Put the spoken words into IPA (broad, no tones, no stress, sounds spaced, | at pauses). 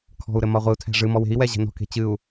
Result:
kʰ ɔ̤ u̯ ɾ ɘ m ɒ ʁʷ ɨ u̯ tʰ æ̤ ʐ ɨ m ɔ w e̤ i̯ w ɛ ʑ ɛ̤ n ɔ̤ k e̤ t͡ɕ ɨ u̯